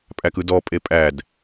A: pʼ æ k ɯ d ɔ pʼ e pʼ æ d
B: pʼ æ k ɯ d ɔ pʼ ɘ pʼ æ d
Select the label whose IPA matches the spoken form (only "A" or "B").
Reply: A